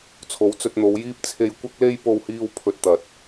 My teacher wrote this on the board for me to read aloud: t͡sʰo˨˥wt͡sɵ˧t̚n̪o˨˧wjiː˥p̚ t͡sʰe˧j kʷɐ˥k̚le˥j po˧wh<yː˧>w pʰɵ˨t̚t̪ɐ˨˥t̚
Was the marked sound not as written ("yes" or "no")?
yes